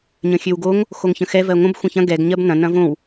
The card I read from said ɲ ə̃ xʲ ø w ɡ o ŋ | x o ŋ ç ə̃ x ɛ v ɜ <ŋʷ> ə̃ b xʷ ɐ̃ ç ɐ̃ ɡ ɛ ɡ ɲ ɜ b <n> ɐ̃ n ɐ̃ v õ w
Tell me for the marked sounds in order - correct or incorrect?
correct, correct

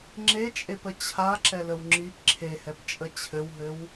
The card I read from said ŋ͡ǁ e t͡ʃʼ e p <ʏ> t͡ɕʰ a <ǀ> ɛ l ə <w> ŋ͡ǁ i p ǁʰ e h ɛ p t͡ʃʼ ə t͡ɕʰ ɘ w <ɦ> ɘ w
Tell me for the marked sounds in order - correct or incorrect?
incorrect, incorrect, correct, correct

